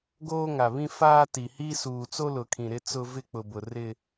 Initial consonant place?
velar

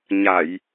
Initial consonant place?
palatal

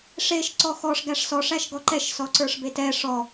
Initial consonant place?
retroflex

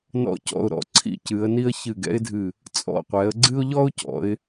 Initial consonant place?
alveolar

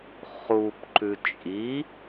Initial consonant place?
uvular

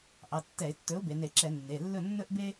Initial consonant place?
glottal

